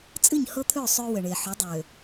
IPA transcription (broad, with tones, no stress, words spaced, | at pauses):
t͡sʼɨ˦˨ɲhɤ˦t̪ʰø˦˨ sˤø˦wə˨ ɳe˨ħʏ˨˦ dˤø˨